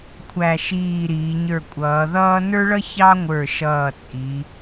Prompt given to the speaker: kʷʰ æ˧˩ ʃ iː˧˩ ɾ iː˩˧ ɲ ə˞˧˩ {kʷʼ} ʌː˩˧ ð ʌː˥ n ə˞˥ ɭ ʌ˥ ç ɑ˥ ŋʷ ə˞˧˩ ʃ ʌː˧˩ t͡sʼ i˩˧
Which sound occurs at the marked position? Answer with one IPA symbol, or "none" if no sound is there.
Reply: kʷʼ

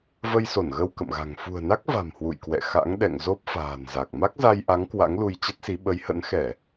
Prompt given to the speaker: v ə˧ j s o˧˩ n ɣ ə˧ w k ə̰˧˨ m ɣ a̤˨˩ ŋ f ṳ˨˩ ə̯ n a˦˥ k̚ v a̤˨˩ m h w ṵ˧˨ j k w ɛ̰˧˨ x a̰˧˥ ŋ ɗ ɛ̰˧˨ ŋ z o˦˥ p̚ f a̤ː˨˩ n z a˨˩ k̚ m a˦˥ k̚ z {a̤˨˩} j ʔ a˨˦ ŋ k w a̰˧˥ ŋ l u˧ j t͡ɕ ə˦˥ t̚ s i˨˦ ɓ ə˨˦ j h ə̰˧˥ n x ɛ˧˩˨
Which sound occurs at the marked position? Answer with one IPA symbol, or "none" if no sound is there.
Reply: a˧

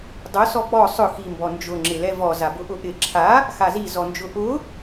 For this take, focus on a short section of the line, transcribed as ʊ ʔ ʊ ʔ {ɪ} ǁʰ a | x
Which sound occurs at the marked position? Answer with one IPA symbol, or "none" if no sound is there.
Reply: ɪ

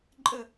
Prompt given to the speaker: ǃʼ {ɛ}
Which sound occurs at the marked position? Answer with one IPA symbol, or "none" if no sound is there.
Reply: ə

